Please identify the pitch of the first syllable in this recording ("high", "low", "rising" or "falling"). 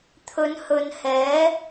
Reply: rising